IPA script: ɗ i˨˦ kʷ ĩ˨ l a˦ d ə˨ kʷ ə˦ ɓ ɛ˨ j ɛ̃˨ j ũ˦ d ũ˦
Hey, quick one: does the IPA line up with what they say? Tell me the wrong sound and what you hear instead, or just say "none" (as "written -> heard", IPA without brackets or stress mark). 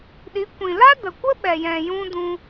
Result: none